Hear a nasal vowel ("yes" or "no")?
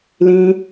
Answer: yes